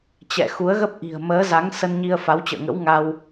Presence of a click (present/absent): absent